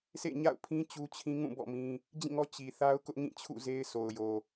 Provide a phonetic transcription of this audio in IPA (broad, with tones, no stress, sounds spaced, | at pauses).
s ḛ˦˨ ɲ a̰˦˨ ʊ̯ pʰ ĩ˦ t͡ɕ u˦ t͡ɕʰ ĩ˦ ŋ ũ˦˨ b ɔ̰˦˨ m ĩ˦ | d͡ʑ ĩ˦˨ ŋ ɔ˦ t͡ɕ i˨ θ a˦ ʊ̯ k ʊ˦ ʔ ŋ ĩ˦˨ t͡ɕʰ ṵ˦˨ z e˦ ɪ̯ sʰ o˨ ʊ̯ j o˨